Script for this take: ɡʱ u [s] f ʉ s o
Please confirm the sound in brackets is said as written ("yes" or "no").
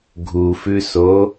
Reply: no